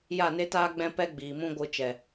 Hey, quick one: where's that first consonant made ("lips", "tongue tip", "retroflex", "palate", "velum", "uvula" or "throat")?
palate